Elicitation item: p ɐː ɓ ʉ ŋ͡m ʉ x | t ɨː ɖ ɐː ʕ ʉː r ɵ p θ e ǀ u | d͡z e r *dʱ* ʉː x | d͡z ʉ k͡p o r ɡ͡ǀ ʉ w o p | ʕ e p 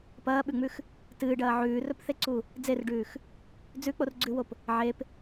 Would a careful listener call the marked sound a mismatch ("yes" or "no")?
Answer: yes